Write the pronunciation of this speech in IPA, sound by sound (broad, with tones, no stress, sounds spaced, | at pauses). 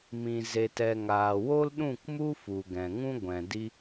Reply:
m ĩ˨ z e˨ t ɛ˨ ŋ aː˨ w o˦ l ɗ ũ˦˨ k m u˦ f u˨ ɡ ɛ̃˨ ŋ ũ˦ ɡʷ ɛ̃˨ d i˦